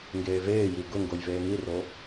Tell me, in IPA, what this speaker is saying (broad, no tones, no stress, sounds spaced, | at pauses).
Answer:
ŋ ɡ eː v eː j i ɡ ʊ ŋ ɡ o j v eː ŋ i r o